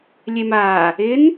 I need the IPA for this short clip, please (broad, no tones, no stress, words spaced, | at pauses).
lʲemaː | ɪn